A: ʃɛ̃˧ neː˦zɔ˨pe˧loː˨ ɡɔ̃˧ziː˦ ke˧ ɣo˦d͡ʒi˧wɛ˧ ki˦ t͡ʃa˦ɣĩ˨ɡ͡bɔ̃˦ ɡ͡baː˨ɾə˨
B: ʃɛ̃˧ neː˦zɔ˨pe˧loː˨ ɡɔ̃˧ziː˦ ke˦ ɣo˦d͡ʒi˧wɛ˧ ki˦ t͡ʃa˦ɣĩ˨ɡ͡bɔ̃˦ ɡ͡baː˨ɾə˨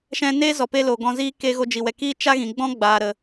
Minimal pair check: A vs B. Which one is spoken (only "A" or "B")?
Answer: A